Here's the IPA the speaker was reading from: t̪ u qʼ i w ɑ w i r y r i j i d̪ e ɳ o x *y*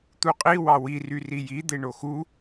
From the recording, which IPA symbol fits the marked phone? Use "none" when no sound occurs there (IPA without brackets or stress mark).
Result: u